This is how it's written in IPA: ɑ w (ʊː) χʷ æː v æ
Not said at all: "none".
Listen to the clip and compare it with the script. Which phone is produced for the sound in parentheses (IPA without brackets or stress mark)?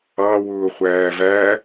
ʊː